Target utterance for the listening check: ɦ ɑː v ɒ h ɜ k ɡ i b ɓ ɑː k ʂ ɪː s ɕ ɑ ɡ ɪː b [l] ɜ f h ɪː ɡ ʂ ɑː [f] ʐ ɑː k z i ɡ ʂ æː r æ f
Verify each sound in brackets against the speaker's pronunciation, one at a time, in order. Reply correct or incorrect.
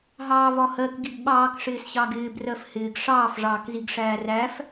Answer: incorrect: r, correct

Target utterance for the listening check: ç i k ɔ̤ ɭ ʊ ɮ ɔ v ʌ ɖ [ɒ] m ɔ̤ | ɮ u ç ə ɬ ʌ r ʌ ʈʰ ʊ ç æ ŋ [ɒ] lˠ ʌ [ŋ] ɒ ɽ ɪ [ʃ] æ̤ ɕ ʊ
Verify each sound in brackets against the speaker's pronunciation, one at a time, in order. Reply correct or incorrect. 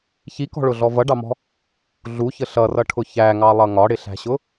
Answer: incorrect: ɑ, incorrect: ɑ, correct, incorrect: ɬ

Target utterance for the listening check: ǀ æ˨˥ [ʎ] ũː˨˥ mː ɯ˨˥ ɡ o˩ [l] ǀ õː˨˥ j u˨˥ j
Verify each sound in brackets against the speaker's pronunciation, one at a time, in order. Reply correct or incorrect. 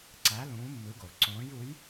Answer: incorrect: l, correct

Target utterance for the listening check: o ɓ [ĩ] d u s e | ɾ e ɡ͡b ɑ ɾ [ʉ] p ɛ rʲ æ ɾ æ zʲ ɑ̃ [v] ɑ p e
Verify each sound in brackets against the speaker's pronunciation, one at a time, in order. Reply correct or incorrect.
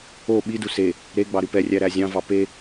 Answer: incorrect: i, correct, correct

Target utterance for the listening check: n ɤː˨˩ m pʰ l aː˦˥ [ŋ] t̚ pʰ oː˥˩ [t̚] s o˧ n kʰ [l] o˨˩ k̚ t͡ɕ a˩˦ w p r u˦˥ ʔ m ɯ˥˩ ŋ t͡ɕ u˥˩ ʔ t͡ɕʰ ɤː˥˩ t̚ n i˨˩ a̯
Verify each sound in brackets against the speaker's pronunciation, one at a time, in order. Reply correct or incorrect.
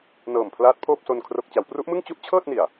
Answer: incorrect: none, incorrect: p̚, incorrect: r

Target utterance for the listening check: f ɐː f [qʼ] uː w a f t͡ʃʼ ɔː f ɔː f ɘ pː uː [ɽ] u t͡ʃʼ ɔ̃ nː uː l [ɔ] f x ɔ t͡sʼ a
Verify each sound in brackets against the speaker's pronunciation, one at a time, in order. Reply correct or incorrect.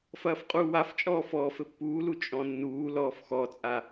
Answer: correct, incorrect: l, incorrect: ɔː

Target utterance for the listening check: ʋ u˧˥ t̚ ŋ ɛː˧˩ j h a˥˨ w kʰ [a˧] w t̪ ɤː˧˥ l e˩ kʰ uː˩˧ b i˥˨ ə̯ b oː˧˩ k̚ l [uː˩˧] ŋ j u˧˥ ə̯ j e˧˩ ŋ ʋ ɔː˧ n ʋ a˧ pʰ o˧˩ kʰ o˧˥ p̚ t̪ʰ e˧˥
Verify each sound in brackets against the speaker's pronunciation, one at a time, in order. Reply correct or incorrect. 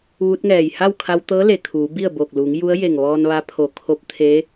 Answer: correct, correct

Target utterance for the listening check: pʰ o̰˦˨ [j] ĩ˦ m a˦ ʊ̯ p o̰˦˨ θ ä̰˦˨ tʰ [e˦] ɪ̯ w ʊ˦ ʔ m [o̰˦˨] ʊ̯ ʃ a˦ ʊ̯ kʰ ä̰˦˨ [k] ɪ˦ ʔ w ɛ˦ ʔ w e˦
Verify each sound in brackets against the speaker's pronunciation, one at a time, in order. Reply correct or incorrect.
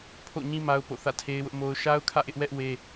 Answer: incorrect: ɲ, correct, incorrect: o˦, incorrect: ʔ

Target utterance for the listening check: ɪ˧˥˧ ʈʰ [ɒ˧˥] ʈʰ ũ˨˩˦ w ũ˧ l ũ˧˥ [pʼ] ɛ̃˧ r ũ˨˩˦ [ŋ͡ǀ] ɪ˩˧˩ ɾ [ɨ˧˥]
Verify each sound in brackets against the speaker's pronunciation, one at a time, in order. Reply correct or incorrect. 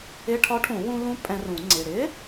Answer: correct, correct, correct, incorrect: ɪ˧˥

